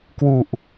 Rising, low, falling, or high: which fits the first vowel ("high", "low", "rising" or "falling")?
low